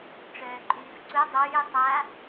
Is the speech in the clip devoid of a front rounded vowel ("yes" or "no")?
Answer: no